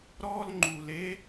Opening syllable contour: high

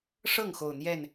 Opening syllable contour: falling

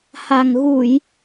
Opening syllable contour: low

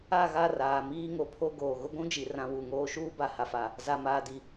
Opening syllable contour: falling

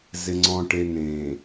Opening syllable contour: low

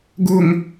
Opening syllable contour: high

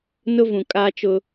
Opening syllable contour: high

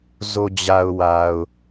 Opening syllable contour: low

